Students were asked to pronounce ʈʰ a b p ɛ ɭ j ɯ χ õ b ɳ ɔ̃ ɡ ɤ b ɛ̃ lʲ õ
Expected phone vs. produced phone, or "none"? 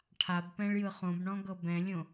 ɛ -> ɛ̃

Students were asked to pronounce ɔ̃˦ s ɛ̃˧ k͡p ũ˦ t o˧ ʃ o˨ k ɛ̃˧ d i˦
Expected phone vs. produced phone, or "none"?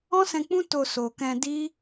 ʃ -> s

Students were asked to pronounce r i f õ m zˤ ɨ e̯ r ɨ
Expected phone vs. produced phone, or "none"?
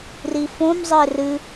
none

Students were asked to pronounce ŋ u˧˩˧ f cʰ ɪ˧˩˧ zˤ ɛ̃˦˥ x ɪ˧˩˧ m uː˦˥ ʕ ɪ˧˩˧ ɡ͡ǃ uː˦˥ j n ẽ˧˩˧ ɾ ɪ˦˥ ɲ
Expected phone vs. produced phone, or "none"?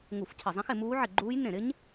none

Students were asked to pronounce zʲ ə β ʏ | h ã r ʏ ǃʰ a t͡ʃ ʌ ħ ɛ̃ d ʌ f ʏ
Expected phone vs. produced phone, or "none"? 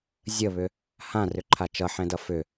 none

